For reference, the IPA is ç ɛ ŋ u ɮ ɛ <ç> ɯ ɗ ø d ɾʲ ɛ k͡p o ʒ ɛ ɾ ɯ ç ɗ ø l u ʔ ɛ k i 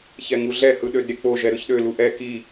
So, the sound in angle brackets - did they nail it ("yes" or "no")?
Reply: no